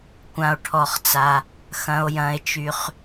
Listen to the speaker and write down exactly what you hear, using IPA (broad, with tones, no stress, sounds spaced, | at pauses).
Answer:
kʷ ã˧ o̯ ʈʰ ɔ˧ χ t͡s a˧ | x ɐ̃˧ o̯ j ɐ̃˧ e̯ t͡ʃ y˧ χ